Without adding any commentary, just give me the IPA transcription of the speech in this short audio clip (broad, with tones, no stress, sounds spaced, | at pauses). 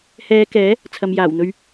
h ɛː˨˧ k ɛː˨˥ | t͡sʰ ɐ˨ m j aː˨˩ w n̪ ɵ˧ ɥ